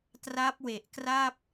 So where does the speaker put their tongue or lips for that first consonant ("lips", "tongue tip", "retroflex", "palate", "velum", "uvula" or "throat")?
tongue tip